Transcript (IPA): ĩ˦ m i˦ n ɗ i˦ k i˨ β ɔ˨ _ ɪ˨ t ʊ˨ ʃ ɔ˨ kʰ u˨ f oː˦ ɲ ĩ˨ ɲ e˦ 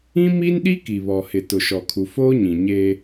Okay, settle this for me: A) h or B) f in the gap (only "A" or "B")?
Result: A